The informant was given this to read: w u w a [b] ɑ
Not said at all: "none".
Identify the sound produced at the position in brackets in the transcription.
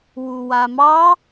m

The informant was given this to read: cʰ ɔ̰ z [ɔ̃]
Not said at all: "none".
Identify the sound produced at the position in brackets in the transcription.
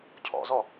ɔ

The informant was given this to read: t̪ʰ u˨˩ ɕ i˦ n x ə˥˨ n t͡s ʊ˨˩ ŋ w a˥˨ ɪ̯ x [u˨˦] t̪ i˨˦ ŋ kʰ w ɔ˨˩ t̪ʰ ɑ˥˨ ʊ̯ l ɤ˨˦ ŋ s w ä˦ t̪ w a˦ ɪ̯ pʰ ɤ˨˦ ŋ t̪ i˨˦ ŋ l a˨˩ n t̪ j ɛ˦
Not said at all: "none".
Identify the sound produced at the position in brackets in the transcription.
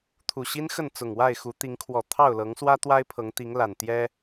u˨˦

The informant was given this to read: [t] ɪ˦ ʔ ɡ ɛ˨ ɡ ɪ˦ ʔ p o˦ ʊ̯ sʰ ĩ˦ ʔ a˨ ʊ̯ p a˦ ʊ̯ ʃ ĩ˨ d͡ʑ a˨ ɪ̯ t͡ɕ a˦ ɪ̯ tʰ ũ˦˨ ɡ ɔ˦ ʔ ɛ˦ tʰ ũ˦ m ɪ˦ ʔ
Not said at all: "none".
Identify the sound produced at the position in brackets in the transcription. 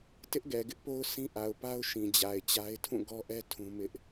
t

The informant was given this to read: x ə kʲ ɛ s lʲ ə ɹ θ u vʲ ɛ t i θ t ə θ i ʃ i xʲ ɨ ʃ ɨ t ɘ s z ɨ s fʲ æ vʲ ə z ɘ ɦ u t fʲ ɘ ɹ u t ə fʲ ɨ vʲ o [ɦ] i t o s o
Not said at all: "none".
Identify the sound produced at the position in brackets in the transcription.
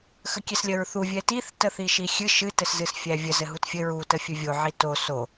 ʕ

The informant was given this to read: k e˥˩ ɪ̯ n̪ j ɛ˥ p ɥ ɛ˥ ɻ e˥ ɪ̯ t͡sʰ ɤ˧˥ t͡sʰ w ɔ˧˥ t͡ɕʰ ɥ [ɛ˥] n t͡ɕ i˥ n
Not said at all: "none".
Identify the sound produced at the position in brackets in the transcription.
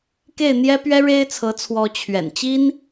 ɛ̰˨˩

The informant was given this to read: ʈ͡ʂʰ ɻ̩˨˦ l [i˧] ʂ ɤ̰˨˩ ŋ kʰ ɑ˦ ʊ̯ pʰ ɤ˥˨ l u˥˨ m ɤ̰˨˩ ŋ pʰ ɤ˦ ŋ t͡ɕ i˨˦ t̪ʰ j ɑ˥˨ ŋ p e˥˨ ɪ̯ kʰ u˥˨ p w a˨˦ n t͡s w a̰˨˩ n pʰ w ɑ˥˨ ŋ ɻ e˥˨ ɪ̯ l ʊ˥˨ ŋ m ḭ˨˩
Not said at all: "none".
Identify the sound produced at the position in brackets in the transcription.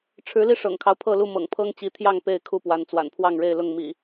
i˧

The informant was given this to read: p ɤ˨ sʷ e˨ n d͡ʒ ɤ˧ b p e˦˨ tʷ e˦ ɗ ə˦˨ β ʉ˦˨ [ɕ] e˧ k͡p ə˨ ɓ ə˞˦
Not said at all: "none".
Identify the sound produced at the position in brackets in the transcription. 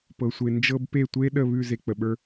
z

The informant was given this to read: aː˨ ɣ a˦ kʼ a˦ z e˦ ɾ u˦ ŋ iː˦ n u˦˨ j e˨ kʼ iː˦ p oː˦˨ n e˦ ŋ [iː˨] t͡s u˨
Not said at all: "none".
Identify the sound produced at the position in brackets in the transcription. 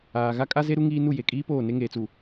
eː˨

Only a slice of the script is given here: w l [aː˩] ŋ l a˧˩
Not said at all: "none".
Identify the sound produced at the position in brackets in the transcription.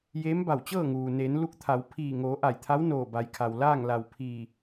aː˥˨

